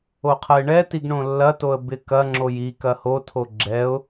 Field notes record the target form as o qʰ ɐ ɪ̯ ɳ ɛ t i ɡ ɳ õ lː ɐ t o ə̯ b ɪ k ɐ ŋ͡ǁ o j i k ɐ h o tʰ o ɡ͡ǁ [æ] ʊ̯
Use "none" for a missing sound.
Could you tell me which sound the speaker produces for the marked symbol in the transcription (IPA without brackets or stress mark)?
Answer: ɛ